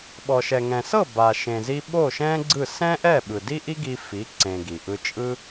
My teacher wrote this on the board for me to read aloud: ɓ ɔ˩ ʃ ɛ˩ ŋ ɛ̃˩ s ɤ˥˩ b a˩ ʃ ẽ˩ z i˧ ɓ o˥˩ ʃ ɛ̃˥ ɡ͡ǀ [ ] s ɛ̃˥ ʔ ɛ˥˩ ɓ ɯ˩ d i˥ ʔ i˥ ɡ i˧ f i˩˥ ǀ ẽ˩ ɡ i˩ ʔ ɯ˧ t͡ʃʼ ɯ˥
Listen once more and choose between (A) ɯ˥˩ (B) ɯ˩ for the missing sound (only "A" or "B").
A